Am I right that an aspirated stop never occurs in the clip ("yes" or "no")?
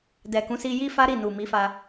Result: yes